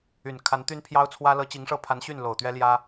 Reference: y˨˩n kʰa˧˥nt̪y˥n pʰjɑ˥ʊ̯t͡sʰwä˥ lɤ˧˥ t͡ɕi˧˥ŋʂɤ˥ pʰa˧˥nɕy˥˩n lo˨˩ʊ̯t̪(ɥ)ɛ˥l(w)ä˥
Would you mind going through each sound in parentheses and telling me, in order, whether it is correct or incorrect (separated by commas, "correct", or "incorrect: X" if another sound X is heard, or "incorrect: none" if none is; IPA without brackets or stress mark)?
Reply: correct, incorrect: j